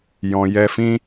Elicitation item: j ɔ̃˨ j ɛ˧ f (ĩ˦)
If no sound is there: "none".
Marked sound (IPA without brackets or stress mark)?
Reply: ĩ˦